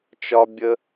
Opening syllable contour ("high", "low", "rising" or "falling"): high